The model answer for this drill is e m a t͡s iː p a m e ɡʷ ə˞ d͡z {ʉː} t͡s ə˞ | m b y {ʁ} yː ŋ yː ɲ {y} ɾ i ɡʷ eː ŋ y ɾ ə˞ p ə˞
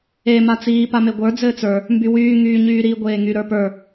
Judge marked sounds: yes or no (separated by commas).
no, no, no